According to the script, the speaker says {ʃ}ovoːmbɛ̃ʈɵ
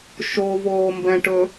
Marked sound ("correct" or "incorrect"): correct